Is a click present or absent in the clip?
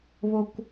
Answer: absent